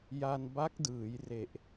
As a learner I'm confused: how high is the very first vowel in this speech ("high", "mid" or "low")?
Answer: low